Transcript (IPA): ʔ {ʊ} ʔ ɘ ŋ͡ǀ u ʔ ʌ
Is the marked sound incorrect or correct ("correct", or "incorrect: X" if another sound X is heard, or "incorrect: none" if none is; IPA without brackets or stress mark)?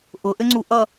correct